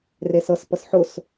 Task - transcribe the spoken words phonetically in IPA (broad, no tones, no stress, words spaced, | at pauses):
resɤs pɤsħʊs